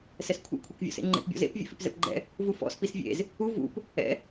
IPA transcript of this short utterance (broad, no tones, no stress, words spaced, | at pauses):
sɛskʷʰḛ kʷʰekvʲɔ̰sḛŋ͡ǃḛp bʲɔ̰zḛp vʲɛ̰fipzɛ̰pɡ͡ǃɛ̰ | vufɔ̰s pisvʲḛz | u vṵp | ɛ̰